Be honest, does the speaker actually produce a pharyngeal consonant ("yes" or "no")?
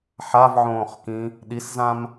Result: yes